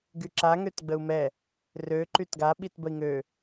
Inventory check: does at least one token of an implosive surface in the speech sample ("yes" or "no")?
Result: yes